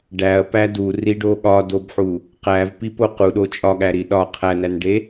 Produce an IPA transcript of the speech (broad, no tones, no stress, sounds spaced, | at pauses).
ɖ æ ɐ̯ p æ d u r i ɖ o ɠ ɒ d o b ħ u | q æ v p i p o q u ɗ o t͡ʃʼ ɒ ɠ æ ɾ i ɗ ɒ qʰ æ n æ n ɖ e